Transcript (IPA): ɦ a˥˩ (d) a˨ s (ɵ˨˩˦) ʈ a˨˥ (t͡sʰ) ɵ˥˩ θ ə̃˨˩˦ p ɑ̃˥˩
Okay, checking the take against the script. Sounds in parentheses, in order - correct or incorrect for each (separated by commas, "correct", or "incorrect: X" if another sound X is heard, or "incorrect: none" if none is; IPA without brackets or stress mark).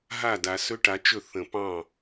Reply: correct, incorrect: ɵ˦˥, incorrect: t͡ʃ